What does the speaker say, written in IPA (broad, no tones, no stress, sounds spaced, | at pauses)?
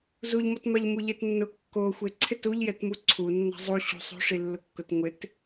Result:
z u ʎ m ɔ t m a ʎ m u ʎ e t nː ʊ kː o xʷ e ǀʰ ɪ t u ʎ j ɛ t m u ǀʰ u nː a̤ zˤ u ɕ ṳ sˤ ṳ ʂ i lː ʊ kː ʊ t ŋʷ ɪ t